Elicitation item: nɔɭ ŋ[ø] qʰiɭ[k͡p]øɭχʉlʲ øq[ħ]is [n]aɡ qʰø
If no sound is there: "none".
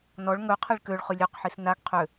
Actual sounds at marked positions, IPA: ɵ, k, ħ, n

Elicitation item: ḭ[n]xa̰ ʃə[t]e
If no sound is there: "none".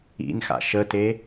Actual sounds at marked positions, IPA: n, t

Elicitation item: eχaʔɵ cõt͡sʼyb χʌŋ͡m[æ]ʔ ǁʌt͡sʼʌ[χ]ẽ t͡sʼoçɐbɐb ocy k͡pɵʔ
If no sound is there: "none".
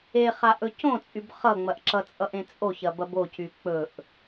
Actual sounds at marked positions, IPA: ɐ, ʔ

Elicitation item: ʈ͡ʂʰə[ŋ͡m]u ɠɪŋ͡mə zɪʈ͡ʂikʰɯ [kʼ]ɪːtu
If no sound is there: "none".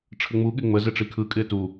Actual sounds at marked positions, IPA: ŋ͡m, kʼ

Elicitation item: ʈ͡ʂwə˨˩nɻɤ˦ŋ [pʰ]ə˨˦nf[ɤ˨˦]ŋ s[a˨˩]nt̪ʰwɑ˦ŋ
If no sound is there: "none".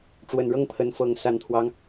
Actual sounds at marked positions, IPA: pʰ, ɤ˨˦, a˨˩

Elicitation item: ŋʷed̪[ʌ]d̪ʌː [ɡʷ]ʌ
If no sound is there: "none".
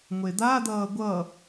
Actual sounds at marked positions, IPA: a, ɡʷ

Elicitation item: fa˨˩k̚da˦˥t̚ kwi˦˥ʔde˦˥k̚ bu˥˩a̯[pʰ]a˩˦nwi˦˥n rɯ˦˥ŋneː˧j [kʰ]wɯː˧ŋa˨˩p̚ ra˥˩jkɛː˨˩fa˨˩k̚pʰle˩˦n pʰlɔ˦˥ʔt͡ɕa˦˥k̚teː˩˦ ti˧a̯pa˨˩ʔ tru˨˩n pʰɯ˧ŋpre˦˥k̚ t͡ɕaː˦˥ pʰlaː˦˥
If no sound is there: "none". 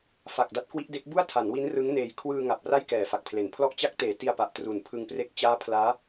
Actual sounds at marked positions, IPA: tʰ, kʰ

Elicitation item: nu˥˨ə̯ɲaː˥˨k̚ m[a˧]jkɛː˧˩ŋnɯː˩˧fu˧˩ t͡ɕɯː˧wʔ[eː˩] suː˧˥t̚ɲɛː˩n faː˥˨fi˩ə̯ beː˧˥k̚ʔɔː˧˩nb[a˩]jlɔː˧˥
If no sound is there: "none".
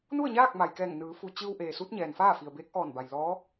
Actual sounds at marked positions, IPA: a˩, eː˩, a˩

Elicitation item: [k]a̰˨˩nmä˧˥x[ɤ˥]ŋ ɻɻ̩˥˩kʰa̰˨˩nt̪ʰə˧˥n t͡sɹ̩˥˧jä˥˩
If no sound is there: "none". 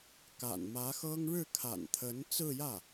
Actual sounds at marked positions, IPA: k, ɤ˥

